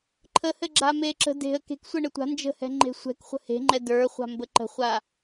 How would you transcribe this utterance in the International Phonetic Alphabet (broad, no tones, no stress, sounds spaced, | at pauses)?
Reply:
ǃʰ ə h ɘ ɡ͡ǁ a m e ǁ ə̤ d e̤ ə̯ k e̤ k sʷ ɘ ɳ ɘ tʷ a̤ n d͡ʒ ə̤ h ɛ̤ ŋ͡ǃ e̤ sʷ ɛ̤ k χʷ ə̤ h e̤ ŋ͡ǃ ɛ d ə˞ χʷ a̤ m b ə ǃ ə̤ χʷ a